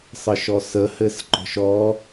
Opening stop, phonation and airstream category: click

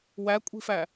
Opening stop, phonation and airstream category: ejective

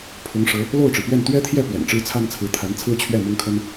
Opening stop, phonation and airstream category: aspirated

